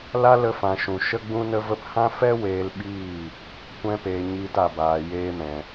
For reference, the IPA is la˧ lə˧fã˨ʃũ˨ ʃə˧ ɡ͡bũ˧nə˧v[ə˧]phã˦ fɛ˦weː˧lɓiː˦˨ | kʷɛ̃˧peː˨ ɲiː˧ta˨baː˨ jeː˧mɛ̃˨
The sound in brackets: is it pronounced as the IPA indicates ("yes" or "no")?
yes